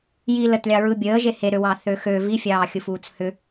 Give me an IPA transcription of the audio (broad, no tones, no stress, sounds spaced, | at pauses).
j i l ə t lʲ ɑ ɹ ɯ bʲ əː ʒ e h e ɾ ø w ɑ θ ø x ø v i fʲ ɑː xʲ ɯ f uː t͡s h ʏ